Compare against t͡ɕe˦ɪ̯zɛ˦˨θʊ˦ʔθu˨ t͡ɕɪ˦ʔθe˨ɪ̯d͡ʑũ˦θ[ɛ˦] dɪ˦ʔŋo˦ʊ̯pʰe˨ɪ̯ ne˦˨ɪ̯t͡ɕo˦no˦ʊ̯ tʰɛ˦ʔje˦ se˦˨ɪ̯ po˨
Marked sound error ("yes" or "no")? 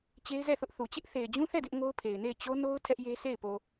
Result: yes